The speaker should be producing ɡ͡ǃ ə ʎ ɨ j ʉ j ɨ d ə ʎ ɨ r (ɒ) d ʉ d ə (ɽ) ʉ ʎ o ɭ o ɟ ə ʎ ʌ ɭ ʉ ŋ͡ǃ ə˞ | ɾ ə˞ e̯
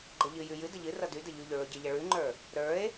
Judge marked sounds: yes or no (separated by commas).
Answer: no, no